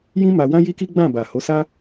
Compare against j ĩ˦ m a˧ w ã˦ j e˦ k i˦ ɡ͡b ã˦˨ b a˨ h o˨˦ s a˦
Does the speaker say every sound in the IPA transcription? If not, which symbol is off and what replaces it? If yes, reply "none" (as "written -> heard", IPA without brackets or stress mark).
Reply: e˦ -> i˦